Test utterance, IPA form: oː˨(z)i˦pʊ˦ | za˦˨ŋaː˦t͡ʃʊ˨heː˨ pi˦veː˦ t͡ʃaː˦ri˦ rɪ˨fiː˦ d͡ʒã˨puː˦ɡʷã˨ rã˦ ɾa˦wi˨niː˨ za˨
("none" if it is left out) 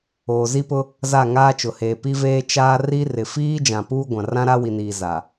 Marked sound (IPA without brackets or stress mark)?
z